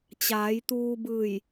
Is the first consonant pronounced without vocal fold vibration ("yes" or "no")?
yes